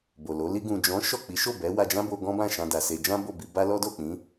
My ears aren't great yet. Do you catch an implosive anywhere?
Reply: no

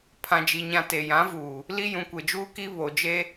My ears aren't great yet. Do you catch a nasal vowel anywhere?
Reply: yes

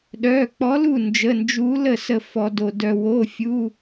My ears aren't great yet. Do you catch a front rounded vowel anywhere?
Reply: yes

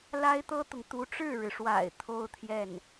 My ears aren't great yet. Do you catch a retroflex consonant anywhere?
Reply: yes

